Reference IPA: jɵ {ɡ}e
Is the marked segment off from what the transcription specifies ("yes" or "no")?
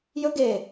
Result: no